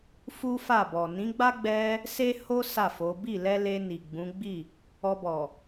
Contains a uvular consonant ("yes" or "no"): no